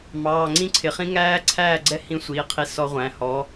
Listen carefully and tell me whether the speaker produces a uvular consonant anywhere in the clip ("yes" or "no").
yes